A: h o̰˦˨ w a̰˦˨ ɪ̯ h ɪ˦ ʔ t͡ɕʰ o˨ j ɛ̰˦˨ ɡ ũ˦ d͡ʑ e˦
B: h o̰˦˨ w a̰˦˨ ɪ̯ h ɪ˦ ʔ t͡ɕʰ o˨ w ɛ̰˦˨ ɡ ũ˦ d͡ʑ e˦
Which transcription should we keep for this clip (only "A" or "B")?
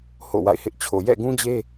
A